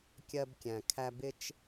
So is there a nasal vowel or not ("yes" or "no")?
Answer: yes